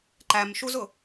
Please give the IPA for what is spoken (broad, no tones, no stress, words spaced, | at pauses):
ǃæmʃuzʊ